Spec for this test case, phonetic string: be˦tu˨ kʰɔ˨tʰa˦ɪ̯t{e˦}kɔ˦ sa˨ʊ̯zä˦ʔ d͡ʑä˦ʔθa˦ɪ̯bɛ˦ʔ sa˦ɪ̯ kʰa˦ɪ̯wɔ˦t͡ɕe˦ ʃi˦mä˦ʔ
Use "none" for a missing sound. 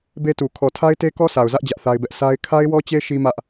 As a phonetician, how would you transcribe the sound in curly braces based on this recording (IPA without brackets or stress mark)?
e˦